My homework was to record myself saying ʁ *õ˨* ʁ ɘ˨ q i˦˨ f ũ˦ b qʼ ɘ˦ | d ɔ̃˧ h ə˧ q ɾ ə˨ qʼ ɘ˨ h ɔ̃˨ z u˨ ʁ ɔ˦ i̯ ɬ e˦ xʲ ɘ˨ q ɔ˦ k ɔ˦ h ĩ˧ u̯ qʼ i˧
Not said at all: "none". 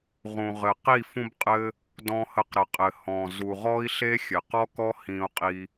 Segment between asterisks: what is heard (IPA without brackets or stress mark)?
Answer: ũ˨